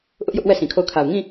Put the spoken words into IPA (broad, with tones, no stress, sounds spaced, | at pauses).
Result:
ʔ ʊ˦ ʔ j ʊ˦ ʔ w ɛ˦˨ sʰ ĩ˨ kʰ o˦˨ ʊ̯ kʰ a˨ ʊ̯ ŋ ĩ˦˨